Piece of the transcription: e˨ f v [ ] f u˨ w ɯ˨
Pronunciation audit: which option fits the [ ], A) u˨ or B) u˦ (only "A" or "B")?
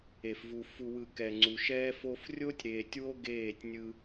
A